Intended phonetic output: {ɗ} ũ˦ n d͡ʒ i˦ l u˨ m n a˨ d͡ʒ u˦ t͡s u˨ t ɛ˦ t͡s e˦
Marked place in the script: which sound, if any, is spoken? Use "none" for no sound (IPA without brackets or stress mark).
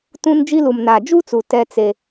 t